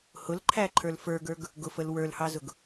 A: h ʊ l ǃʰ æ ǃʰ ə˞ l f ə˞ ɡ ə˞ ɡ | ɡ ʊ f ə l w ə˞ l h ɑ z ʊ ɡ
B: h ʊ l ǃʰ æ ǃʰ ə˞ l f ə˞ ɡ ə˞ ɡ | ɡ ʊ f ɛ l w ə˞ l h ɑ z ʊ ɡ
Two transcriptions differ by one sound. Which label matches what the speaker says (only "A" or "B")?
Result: A